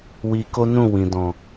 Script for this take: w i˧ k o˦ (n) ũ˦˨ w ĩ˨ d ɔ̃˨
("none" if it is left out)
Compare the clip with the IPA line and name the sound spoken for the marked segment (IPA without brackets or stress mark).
n